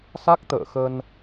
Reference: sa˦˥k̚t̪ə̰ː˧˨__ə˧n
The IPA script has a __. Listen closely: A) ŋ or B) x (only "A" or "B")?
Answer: B